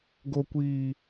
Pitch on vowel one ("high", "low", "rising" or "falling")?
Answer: low